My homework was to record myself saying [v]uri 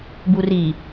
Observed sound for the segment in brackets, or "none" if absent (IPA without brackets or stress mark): b